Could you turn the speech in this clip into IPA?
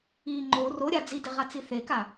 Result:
i ŋ͡ǃ o r o ɾʲ a d͡z i d e ʁ a t͡s i θ e k a

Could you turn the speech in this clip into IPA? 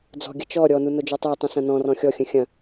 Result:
d͡z ɔ̤ ɡʲ ɐ t͡ʃ ɔ ɾʲ ɔ n u n o d͡ʒ ɔ tˤ o tˤ ũ s ɐ̃ n ɔ̃ r ɔ̃ xʲ ɔ xʲ ə̃ xʲ ɐ̃

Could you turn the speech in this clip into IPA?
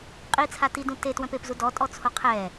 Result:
qʼ i t͡sʰ a t i d ũ t e t w œ̃ p e p z u d ɔ tʼ ɔ t͡sʰ o qʰ ɛ

